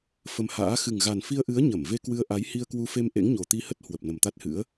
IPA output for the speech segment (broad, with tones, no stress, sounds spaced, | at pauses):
f ə˧ m h a̰ː˧˥ x ɨ˨˩ ŋ ɣ a˨˩ n f i˧ ə̯ ʔ ɨ˨˦ ə̯ ɲ ə˧˩ m v e˧ k w ɨ˧ ə̯ ʔ a˨˦ j h i˧ ə̯ k w u˧ f e˧ m ʔ ḛ˧˥ ŋ ɲ o˨˩ t̪ i˧ h ə˦˥ t̚ h w ə˨˩ p̚ n ə˨˩ m t̪ a˦˥ t̚ h ɨ̰˧˥ ə̯